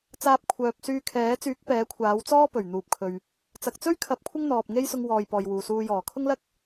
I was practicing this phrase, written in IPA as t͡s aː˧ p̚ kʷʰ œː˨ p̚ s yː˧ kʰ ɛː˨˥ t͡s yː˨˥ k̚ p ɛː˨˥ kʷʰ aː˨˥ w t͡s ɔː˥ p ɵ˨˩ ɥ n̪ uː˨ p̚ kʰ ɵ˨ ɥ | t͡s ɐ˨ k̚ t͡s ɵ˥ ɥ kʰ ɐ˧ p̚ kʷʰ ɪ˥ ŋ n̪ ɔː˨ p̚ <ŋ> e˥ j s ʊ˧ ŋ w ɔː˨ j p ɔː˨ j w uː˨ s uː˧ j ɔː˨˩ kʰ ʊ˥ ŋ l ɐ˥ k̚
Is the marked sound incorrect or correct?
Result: correct